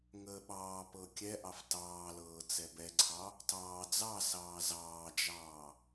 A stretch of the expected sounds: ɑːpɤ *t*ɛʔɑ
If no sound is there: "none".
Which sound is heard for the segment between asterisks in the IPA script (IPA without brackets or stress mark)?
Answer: kʲ